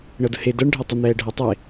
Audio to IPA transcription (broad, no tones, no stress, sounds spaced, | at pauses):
ɳ ɤ d ə h e d ɤ ɳ ɖʱ ɛ tˤ ə n̪ ɛː ɖʱ ɤ tˤ e